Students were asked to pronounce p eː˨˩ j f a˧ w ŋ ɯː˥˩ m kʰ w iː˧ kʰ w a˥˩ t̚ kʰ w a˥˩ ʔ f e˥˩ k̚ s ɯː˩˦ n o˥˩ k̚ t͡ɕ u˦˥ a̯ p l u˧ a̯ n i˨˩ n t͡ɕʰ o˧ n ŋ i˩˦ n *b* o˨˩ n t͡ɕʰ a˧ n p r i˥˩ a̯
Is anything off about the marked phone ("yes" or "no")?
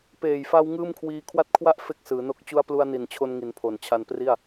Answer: yes